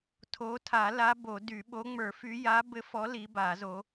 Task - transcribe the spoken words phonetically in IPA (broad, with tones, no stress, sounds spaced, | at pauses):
tʰ o˨˦ tʰ a˨˩˦ l a˨˦ b o˨˩˦ d y˨˩˦ ɓ o˨˦ ŋ͡m ə˞˨˩˦ f y˨˦ j a˨˦ b ɘ˨˦ f ɔ˨˦ l i˨˦ b a˨˩˦ z o˨˦